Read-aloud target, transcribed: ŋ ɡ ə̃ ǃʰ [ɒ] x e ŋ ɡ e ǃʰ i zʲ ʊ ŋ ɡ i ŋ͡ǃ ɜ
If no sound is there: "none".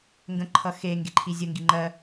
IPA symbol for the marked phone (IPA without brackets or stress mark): ʌ